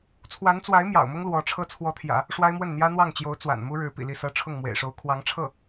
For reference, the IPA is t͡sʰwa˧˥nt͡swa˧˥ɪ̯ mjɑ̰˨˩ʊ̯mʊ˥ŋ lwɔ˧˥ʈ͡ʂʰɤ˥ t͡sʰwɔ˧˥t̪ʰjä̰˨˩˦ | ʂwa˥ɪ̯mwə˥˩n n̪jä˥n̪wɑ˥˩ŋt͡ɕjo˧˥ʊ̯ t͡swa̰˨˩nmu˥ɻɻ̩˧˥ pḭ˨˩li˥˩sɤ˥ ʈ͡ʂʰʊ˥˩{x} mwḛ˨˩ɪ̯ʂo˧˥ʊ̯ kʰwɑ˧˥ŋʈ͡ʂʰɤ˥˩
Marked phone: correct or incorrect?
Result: incorrect: ŋ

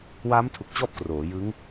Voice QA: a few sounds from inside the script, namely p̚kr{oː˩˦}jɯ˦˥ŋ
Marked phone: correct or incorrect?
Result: correct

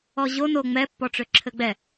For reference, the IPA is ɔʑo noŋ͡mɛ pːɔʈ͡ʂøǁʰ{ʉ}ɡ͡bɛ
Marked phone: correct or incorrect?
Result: incorrect: ɘ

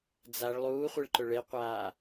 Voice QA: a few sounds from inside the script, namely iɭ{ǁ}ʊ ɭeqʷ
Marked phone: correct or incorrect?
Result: incorrect: ǃ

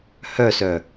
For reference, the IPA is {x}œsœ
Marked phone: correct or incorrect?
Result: incorrect: h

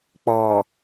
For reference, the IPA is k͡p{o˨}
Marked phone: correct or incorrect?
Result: incorrect: ɔ˨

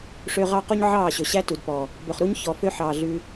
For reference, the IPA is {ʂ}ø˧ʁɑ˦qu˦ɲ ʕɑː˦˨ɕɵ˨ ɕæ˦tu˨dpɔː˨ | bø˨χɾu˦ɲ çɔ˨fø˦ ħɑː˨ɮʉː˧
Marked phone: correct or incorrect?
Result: correct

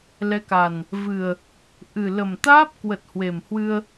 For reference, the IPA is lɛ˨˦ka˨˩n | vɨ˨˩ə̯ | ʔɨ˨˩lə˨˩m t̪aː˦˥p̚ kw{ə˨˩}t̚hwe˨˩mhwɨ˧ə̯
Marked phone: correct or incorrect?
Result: correct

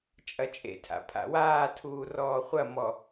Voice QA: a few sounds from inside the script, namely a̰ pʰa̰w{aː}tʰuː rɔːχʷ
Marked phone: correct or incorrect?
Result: correct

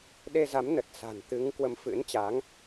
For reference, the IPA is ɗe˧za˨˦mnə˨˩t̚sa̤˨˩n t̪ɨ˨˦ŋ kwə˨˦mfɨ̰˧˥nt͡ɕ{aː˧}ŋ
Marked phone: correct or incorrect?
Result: incorrect: aː˨˦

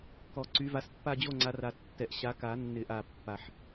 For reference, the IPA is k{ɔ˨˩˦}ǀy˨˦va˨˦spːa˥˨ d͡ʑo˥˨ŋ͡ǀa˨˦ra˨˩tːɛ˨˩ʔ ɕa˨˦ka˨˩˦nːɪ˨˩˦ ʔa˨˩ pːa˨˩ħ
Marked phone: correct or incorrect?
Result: correct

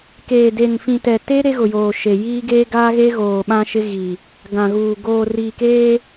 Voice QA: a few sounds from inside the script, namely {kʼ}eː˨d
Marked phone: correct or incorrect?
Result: incorrect: k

